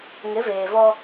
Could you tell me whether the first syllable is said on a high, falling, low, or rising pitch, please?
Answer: rising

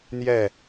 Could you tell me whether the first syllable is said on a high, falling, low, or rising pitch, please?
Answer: falling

